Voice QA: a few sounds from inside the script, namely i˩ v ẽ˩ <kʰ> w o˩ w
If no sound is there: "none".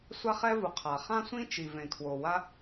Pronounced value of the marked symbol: kʰ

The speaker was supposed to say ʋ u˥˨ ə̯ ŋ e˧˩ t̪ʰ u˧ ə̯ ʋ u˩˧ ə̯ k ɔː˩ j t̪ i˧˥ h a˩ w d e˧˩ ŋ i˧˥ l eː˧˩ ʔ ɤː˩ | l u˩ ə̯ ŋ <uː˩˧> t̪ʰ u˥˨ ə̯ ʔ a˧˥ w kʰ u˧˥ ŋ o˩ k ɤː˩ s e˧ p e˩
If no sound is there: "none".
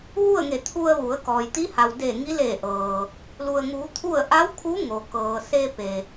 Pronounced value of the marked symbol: uː˩˧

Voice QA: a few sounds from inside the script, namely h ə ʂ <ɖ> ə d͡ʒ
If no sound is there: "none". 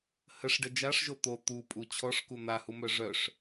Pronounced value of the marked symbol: ɖ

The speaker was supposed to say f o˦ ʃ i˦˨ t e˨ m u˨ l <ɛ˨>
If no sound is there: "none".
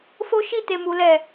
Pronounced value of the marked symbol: ɛ˨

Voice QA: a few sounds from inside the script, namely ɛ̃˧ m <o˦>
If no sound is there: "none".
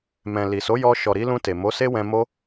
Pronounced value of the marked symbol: o˦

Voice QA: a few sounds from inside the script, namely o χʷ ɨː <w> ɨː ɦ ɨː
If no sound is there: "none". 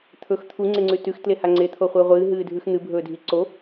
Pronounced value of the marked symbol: ʁʷ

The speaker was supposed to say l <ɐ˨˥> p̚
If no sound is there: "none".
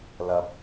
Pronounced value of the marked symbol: ɐ˨˥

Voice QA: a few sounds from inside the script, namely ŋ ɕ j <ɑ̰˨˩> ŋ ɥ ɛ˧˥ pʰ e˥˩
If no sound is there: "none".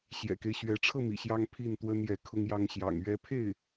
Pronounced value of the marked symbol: ɑ̰˨˩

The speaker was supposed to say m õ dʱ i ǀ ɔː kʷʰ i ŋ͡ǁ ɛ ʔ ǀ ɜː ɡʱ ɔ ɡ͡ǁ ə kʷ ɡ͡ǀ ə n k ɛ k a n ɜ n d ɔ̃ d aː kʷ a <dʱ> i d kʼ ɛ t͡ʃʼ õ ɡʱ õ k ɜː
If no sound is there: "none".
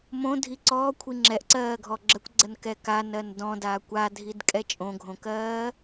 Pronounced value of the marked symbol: dʱ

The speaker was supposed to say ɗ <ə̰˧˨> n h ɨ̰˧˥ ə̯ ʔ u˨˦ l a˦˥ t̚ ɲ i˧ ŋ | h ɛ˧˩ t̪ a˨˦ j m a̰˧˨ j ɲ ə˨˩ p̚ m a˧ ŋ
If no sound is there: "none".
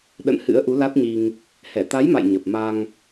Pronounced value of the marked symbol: ə̰˧˨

